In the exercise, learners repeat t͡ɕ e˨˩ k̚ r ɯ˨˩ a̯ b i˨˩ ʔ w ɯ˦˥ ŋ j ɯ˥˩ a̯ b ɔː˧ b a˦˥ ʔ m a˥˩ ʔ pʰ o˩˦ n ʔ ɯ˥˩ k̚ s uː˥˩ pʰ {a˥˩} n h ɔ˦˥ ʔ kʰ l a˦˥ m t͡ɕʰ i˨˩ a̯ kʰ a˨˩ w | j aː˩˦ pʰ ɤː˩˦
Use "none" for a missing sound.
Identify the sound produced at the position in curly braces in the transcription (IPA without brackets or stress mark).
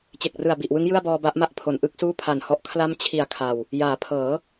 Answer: a˨˩